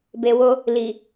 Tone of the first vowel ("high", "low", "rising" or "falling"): low